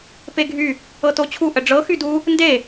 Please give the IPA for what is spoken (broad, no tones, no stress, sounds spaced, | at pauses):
p e ɡʱ y | ɤ t o t͡ɕʰ u ʔ ə ɖ͡ʐ ɤ x y d u | n d e